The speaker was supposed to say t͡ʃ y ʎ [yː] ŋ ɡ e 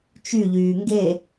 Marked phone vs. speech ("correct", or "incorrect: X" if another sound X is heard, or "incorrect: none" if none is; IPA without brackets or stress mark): correct